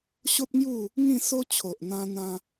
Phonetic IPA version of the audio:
ɕo˦t̚ŋju˥˧ | ŋĩ˥˧so˦ t͡ɕʰo˨ʔn̪ã˧ n̪ã˧

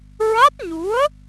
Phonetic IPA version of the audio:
ɹa˦˥t̚ɲu˧˥ə̯

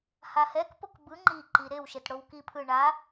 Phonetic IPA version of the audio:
hahɛkpok bɯ ŋ͡ǃiǃi ɾew ʃetɽowkipʰɯ ɳa

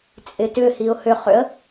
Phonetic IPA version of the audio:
t͡sʼɪtʏhiʊ̯ hʏχʏə̯

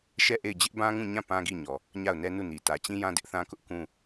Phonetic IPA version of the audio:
ʃɛ˦˨ʔe˦˨ɪ̯ d͡ʑɪ˦ʔbã˦ŋũ˦˨ɲã˦˨ pã˦ɡi˦˨ɲɔ˨ | ɲa˦˨ʊ̯nɛ˦nu˦˨ni˨ tä˨t͡ɕĩ˦jã˦ dɪ˦ʔθã˦kʊ˦ʔ kũ˦

